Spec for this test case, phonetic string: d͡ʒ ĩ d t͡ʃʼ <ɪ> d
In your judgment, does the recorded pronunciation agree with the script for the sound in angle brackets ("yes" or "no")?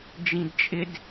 yes